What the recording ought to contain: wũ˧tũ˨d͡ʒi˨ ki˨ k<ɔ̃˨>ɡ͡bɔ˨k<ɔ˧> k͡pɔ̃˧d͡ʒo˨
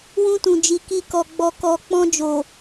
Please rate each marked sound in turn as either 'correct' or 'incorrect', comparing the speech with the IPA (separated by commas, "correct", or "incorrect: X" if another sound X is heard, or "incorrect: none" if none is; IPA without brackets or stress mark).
incorrect: ɔ˨, incorrect: ɔ˨